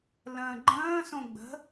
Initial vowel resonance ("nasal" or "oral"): nasal